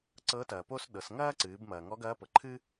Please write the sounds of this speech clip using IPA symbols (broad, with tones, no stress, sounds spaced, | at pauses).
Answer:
ǀ ɤ˧˥ t ɐː˩ p o˥ s ɗ ɤ˩˧ s ŋ ɐː˥ ǀ ɨː˩˧ b m ɐː˩ ŋ ɔ˧˥ ɡ ɐː˧˥ p ɤ˩ ǃʰ ɨ˥